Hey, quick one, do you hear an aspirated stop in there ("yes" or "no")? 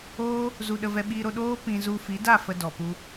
no